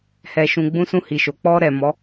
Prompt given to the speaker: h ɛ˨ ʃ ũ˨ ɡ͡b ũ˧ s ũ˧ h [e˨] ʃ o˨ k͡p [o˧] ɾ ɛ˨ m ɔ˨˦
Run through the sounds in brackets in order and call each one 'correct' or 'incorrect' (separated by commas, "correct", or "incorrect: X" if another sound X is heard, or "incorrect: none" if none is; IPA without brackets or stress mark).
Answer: incorrect: i˨, incorrect: ɔ˧